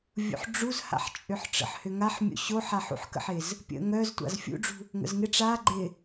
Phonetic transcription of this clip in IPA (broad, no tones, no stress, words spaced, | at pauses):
vʲṵħɖ͡ʐuzha̰ħt͡ʃʼʏħ ʈ͡ʂə̰ħhʏŋaħmʲo̰ ɕoħ aħṵħkə̰ħɪz | pʲə̰ ŋœztʷa̰z fʲṵɖ͡ʐṳ | ŋə̰zŋɪ ʈ͡ʂa ɡ͡ǃɪ